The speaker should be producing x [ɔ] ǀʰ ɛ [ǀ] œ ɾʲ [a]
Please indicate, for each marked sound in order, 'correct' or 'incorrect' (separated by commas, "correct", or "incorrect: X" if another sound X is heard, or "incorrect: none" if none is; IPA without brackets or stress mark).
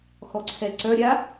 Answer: correct, correct, correct